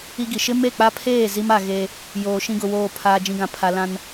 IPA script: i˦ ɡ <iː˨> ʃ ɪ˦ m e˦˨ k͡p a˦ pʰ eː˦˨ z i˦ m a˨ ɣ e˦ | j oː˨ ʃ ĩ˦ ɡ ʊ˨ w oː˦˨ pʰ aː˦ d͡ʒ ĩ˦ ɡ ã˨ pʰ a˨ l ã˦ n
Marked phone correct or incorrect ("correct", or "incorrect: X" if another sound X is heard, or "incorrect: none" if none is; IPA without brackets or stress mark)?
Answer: incorrect: i˨